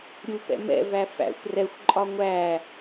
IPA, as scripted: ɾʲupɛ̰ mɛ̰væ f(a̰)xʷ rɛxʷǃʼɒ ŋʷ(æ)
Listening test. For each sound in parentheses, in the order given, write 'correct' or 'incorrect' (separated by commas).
incorrect, correct